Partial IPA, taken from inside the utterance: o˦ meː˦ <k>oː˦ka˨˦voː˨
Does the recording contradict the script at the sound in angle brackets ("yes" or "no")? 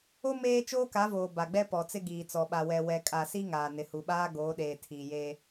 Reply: yes